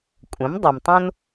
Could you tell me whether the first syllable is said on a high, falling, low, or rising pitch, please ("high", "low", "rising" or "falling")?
rising